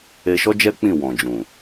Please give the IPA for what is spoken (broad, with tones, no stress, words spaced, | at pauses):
e˧ʃɔ˦d͡ʒɛ˦ k͡pĩ˦˨wɔ̃˨ d͡ʒũ˨